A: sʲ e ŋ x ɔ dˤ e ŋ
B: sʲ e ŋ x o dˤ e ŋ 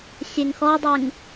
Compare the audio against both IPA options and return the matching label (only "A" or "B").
A